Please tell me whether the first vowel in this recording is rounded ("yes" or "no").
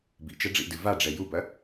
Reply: no